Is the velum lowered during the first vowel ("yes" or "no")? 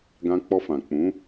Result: yes